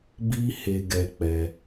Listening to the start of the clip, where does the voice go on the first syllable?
high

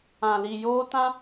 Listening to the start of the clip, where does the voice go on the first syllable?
low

